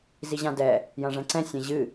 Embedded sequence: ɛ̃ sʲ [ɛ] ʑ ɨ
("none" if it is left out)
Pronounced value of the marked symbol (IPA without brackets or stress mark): ɛ̃